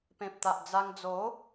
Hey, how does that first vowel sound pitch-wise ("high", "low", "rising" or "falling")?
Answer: low